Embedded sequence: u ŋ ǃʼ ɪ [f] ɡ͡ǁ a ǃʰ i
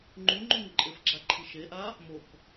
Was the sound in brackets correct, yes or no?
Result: yes